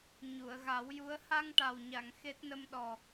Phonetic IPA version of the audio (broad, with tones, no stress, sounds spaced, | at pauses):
ɲ u˨˩˨ ə̯ ɣ a˨˩˦ w j u˧˥ ə̯ h a˧ ŋ ʈ a˨˩ w ɲ a˨˩˨ ŋ x e˦˥ t̚ n ə˧ m ɗ ɔ˨˩